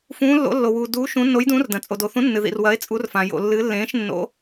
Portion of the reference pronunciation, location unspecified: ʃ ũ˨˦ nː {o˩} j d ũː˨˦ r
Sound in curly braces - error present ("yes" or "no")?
yes